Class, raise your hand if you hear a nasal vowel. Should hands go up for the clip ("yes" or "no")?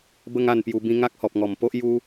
yes